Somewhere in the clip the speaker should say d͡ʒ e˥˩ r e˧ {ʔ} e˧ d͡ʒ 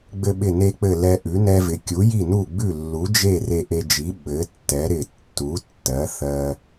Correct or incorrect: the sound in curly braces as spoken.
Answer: correct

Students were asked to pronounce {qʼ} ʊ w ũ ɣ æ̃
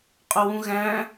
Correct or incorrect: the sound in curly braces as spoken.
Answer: correct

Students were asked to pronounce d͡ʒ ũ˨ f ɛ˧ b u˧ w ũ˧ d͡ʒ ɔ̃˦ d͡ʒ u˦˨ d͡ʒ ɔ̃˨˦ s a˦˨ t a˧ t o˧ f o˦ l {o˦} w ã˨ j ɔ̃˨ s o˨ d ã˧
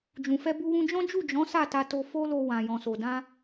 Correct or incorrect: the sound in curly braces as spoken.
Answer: incorrect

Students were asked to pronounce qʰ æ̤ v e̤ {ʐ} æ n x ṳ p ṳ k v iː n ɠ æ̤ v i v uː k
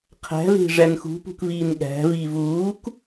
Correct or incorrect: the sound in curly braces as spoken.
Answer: correct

